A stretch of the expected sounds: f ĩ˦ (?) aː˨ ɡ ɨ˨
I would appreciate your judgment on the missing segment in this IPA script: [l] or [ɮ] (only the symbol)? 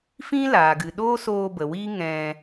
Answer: l